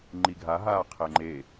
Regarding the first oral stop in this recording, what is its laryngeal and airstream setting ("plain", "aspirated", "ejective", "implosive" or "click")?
click